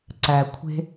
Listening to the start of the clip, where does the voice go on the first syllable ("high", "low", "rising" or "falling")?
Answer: low